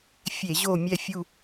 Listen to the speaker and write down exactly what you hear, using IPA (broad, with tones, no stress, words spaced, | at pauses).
fʲe˧˩˧ ʑo˦˨ mʲɛ˦˨fʲu˦˨